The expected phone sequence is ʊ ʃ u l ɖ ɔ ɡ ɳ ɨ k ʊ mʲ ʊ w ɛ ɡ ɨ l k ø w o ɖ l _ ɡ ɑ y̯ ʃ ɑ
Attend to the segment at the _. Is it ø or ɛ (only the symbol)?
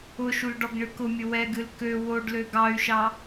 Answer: ø